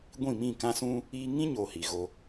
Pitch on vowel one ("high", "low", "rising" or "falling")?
falling